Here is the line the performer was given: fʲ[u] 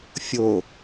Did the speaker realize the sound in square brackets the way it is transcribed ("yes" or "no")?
no